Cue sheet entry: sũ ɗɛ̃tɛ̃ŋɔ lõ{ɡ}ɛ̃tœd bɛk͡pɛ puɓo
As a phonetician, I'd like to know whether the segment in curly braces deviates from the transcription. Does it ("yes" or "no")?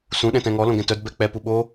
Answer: no